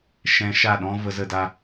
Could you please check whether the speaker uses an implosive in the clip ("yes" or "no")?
yes